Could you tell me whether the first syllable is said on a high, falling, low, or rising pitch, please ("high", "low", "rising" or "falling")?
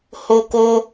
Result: high